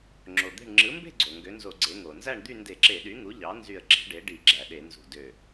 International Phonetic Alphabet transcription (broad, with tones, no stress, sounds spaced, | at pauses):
ŋ͡ǁ o˩ d̪ e̤˧˩ ɳ ŋ͡ǁ ɯ˩˥ m b e̤˥˨ ɡ͡ǀ o˩ ŋ ɡ ø˩˥ n z o˧˩˧ ɡ͡ǀ e˩˥ ŋ o˩ n z æ˥˨ ɳ d̪ y˥˨ n d e˧˩˧ ǁ e˧˩˧ ɗ y˩˥ ŋ u˩˥ ʎ ɑ˩˥ n z y˧˩ ə̯ ɡ͡ǁ e̤˩˥ ɖ e˩˥ ɖ i˧˩˧ ɡ͡ǁ æ˩ ɗ e˧˩˧ n z ṳ˧˩ d ø˧˩